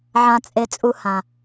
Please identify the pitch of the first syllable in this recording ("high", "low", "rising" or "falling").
low